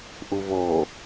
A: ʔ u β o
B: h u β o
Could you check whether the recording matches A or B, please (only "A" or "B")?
A